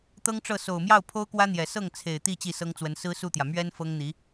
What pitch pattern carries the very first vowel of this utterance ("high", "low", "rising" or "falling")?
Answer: high